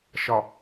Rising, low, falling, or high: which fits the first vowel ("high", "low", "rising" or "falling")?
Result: low